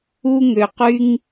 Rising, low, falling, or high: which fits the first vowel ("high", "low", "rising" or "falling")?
high